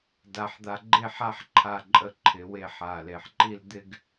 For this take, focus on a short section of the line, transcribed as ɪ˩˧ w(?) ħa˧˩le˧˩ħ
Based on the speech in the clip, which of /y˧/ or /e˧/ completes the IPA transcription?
e˧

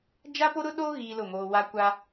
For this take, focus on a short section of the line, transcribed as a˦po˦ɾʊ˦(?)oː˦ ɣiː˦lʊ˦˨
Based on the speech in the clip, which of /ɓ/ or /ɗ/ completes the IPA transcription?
ɗ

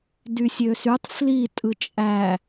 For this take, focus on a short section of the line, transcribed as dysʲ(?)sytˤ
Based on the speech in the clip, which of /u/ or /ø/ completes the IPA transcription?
ø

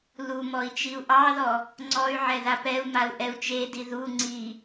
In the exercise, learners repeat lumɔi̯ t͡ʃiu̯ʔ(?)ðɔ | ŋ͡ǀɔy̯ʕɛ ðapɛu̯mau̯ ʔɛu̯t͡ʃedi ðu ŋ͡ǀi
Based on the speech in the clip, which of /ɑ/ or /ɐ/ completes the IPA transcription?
ɑ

